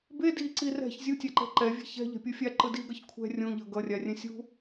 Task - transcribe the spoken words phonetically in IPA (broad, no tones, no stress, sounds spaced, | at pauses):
b e d i ǀ i r ɛ̤ ç zʲ u tʲ a ǃ ɛ̤ ǃ ɛ vʲ ɛ̤ ç ɛ̤ ʎ ɛ̤ pʲ u fʲ a ǃ ɯ d i ɡ ʌ ç kʷʰ ɛ̤ rʲ ũ ʎ ʌ ɡ ʌ rʲ a rʲ ɛ̃ sʲ ṳ